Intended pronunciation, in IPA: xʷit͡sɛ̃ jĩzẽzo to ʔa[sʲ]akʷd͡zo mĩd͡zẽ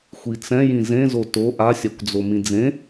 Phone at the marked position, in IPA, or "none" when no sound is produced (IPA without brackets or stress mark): sʲ